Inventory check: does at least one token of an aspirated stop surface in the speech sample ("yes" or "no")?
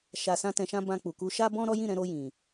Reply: no